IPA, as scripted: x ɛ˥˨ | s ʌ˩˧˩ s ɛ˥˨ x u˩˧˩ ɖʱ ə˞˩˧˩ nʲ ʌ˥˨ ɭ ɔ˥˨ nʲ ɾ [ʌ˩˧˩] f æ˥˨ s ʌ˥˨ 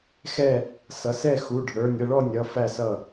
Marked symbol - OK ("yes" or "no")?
yes